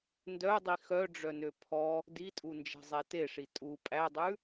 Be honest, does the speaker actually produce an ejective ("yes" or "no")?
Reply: yes